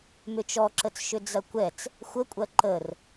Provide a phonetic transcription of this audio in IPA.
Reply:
m ʏ t͡ʃ ɔ ǁ ə t͡s ʃ ʏ d͡z ɐ kʷ ɛ t͡s | xʷ ə kʷʼ ɐ ǃ ə r

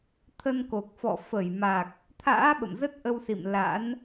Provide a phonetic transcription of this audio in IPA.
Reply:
t̪ʰ ə˧ n k o˨˩ k̚ f ɔ̰˧˨ f ə˧˩ j m a˨˩ k̚ | t̪ʰ a̰ː˧˥ ɓ ə̰˧˨ m z ə˦˥ t̚ ʔ ə˧ w s ḭ˧˨ m l a̰˧˥ n

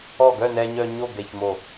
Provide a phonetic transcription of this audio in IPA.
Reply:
ɔ˧˩ ɡ œ˥˨ n ɛ˧ ɲ œ˧ ɲ o˥˨ ɡ ɛ˧˩ ç m o˧˩

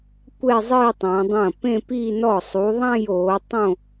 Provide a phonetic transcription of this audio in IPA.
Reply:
kʷ ɛ˥˧ zˤ ɨː˥˧ tˤ ɐ̃ː˨˦ dˤ ɐ̃ː˥˩ p ẽ˥˧ p i˥˧ n ɔ˥˩ sˤ u˨˦ ðˤ ã˥˧ j oː˨˦ tˤ õ˥˧

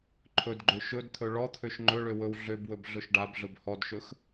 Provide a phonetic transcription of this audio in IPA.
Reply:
ǃʰ ɵ d ɡ͡ǃ ø ʃ ɵ d t̪ʰ ɵ ɭ ɔ t̪ʰ ø ʃ ŋ͡ǃ ɵ ɭ ø w ɵ w ɮ ø b w ɵ b ɮ ɵ ʃ ɖ a b ɮ ɵ b h ɔ d ʃ ɵ x

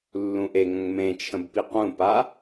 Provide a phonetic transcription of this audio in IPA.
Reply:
lː ũ ʔ e ŋ ə̃ ŋ m ẽ t͡ʃʰ ə̃ b p i q ũ p a

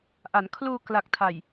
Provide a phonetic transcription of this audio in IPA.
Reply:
ʔ a˩˦ n kʰ l uː˧ k l a˨˩ k̚ tʰ a˨˩ j

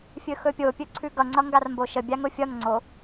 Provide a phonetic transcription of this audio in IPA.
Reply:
fʲ ɵ x ɵ pʲ o pʲ ɵ ǀʰ ʉ ɡ ʌ ŋ͡ǀ ʌ ŋ ɡ a r m b o ʃ ə bʲ a ŋ ʊ fʲ ʌ ŋ ŋ͡ǀ o

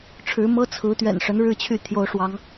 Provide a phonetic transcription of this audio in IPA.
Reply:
ʈ͡ʂʰ ɻ̩˨˦ m ɤ˦ t͡sʰ ɹ̩˨˦ t̪ ɥ ɛ̰˨˩ n ʂ ə˨˦ n ɻ ɻ̩˥˨ t͡ɕʰ y˥˨ t̪ʰ j o˨˦ ʊ̯ ʂ w ɑ˨˦ ŋ

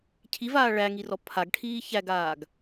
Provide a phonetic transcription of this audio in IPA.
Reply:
cʰ i v aː ɭ æ ŋ i r ɔ pʰ a ɡ ʈʰ iː ç æ ɡ aː ɡ

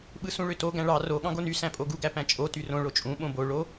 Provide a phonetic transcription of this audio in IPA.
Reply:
ɓ ɯ s ũ ɭ ø t o ɡ æ̃ ɭ ɑ r o ɠ ɑ̃ ɡ o n y s æ̃ pʼ o ɡ u ɡ æ p æ̃ t͡ʃʼ o t y r õ ɭ o t͡ʃʼ ũ ɓ õ b o ɭ o

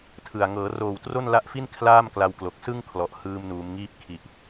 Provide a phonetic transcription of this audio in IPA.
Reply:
tʰ ɯ˨˩ a̯ ŋ ɤː˩˦ r oː˨˩ w t r o˥˩ n l a˦˥ ʔ f i˥˩ n kʰ l aː˥˩ m k l a˧ w k l o˨˩ k̚ s ɯ˥˩ ŋ kʰ l ɔ˨˩ ʔ h ɯː˧ m n uː˩˦ m ŋ iː˦˥ p̚ kʰ i˨˩ ʔ

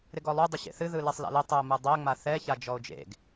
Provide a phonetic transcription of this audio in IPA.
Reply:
ɾ ɪ ɡ ɔ lˠ u dˤ ɪ ɕ ḛ θ ɨ ð ɯ l e sˤ l a̰ l ɪ tˤ ɯ o̯ m ɯ dˤ ɜ ŋ͡m a θ ɛ ç a d͡ʒ ɔ o̯ d͡ʒ ḛ ɡ

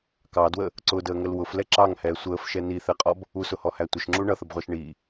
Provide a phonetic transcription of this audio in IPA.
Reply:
k ɑ d w ə | ǀ ʊ d əː ŋ ə l w ʊ f l ɛ ǁ ɑ ŋ h ɛː sʷ əː f ʃ ɛ n i θ ɛ qʼ ɔ b | u s ʊ h ɔ h æ tʷ ə ʃ ŋ͡ǁ u ɳ ʌ θ ə b ʁʷ ɑ ʃ ɳ i

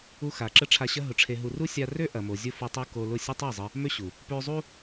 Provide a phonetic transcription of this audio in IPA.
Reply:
u˦ x a˨ ǁ ə˦ ʈ͡ʂʰ a˧ ɕ ɐ˦ ɦ ʊ˧ ʈ͡ʂʰ e˧ ɦ u˧ r u˦ sʲ a˧ r ø˦ ʔ ɐ˨ m o˨ zʲ ʊ˦ f u˧ tˤ o˦ k o˧ l ʊ˦˨ sʲ ə˦ tˤ e˦˨ zˤ ə˧ | m ø˦ ɕ u˨ | p ø˧ zˤ u˦

